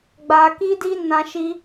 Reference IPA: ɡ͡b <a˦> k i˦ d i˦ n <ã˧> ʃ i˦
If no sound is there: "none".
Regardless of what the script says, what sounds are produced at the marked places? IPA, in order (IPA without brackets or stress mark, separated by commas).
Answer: a˧, ã˧